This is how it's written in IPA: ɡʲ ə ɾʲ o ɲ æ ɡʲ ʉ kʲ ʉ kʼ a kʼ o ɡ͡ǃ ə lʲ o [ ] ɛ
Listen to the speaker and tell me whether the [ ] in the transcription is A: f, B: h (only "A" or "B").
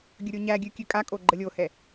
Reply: B